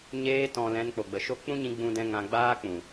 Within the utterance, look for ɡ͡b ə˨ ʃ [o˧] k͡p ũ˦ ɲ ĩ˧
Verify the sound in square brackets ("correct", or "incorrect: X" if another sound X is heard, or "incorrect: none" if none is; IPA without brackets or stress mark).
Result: incorrect: o˦